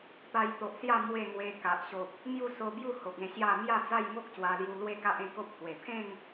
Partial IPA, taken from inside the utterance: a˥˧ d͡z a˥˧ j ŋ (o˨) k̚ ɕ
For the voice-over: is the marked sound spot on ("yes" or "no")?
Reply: no